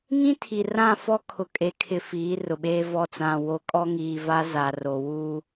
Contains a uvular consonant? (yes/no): no